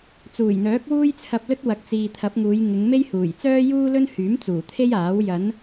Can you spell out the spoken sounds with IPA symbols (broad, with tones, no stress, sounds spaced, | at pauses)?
t͡s uː˨˩ j n̪ œː˨˥ k̚ w uː˥ j t͡sʰ ɐ˧ p̚ l ɵ˥ t̚ w ɐ˨˥ k̚ t͡s iː˨ t̪ʰ ɐ˨˥ p̚ ŋ uː˨˧ j ŋ ɪ˨˧ ŋ m e˥ j h uː˨˩ j t͡s œː˥ j uː˥ l ɵ˥ n h yː˨˥ m t͡s uː˨˩ t̪ʰ e˥ j aː˨˥ w j ɐ˨˧ n